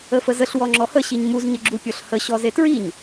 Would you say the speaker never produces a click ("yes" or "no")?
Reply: no